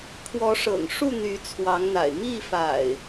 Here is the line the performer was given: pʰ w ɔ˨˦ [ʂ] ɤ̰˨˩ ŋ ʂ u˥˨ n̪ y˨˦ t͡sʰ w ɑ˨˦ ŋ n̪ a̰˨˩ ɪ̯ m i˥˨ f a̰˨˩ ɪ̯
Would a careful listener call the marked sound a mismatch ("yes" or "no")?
no